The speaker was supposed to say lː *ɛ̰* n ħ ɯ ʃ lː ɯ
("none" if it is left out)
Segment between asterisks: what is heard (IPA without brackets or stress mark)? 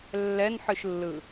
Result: ɛ